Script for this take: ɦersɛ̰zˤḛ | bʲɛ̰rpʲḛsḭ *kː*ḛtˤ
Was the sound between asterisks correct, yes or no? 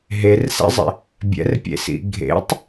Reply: no